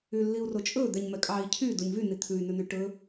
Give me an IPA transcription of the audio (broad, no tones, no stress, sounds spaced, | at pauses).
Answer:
y lː i u̯ r o t͡ʃʼ ɵ d̪ ɛ ɲ m ɛ kʼ ɑ i̯ cʰ y d u ɲ v y n i t̪ʰ ʉ y̯ n ʉ n y ʈ ɵ